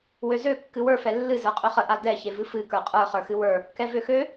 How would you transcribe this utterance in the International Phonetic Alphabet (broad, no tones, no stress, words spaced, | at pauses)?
wøzø kːɨwə˞ fɛlːɨ zə˞qʼøχə ʔadɛ çevɨfɨ kə˞qʼə˞ χə˞xɨwə˞ | kɛvøxø